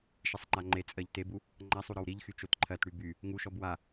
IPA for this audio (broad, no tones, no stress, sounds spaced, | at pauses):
ʃ i sˤ ŋ͡ǃ a ŋ͡ǃ e t͡sʼ ɜ ʎ t e b u | ŋ͡ǃ a sˤ u ɾ ɔ w ɾ i ʎ x y t͡ʃ o t ǃʰ ɜ t ɽ y b y | ŋ u ʃ ɔ b w a